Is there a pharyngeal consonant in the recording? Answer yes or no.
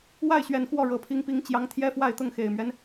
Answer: no